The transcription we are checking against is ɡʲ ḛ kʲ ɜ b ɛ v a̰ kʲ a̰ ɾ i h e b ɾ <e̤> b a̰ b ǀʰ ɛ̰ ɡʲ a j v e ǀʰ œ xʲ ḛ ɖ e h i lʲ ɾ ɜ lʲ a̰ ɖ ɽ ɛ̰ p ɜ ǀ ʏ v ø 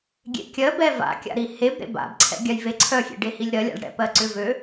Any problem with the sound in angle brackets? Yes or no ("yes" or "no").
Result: yes